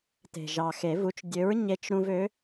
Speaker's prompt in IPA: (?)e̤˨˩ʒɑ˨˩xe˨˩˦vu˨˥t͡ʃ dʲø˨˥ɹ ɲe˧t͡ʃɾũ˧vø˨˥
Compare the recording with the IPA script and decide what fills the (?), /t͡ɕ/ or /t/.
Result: t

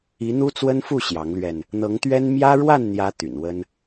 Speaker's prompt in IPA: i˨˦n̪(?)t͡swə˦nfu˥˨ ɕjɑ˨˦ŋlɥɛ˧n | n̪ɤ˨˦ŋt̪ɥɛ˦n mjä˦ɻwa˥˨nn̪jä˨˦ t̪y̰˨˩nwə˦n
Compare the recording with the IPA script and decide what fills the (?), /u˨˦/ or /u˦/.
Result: u˦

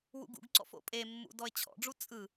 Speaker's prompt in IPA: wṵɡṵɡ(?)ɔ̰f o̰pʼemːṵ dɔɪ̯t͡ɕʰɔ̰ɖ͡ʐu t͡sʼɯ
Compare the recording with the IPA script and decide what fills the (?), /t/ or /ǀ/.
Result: ǀ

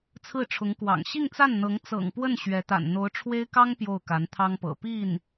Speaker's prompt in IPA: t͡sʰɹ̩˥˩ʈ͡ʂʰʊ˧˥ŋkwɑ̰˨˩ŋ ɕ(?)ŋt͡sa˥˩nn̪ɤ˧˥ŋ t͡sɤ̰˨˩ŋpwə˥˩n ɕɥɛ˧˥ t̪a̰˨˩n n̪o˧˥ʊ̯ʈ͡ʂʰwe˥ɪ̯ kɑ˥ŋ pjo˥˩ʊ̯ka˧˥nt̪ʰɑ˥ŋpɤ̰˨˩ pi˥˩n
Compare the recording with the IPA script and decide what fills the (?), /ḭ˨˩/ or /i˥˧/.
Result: i˥˧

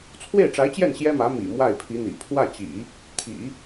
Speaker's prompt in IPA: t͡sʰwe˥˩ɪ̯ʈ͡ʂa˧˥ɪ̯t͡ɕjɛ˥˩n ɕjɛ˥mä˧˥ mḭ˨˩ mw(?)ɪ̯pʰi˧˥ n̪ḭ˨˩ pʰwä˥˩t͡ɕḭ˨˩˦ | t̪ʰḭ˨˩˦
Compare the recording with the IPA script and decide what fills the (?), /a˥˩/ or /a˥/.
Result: a˥˩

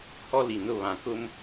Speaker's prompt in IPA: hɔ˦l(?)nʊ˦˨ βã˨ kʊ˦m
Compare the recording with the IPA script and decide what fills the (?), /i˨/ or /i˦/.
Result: i˨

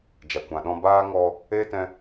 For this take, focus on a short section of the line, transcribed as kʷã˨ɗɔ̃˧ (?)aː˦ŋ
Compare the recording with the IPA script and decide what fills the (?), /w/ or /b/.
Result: b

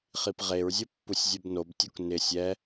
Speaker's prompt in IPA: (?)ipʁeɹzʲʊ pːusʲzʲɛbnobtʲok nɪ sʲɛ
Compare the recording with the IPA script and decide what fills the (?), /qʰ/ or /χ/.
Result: χ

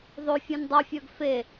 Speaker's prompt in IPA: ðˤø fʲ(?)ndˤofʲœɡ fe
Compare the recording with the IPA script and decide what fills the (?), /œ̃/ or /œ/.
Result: œ̃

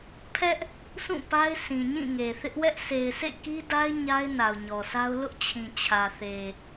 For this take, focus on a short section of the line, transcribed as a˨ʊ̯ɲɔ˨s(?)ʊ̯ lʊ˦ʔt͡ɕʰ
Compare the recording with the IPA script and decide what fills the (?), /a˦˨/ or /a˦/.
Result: a˦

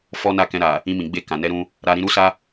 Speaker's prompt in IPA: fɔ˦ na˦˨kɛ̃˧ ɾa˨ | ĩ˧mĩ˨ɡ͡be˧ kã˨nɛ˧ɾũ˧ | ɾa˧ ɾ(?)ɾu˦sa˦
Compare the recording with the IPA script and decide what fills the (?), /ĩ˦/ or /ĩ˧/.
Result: ĩ˧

